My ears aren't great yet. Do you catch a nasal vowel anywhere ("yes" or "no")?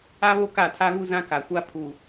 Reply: yes